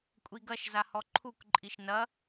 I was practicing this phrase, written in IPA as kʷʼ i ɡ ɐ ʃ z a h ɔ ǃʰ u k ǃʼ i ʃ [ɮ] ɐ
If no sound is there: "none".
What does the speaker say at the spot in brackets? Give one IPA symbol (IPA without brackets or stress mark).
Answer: n